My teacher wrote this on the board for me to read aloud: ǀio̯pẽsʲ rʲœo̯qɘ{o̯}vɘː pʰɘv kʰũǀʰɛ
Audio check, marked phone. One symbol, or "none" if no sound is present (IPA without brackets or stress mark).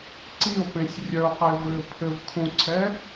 e̯